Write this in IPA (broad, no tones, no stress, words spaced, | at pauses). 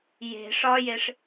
je̤ ʂɒjeʂ